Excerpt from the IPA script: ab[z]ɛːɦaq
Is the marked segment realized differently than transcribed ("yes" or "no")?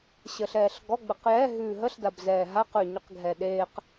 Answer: no